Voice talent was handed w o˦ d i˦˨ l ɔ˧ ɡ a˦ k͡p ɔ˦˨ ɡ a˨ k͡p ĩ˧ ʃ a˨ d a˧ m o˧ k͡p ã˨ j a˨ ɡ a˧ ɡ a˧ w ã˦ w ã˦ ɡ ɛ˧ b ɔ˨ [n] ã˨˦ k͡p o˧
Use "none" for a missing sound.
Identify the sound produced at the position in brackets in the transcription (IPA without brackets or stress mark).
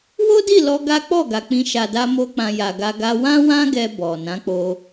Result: n